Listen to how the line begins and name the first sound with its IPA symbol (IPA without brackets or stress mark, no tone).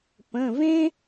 p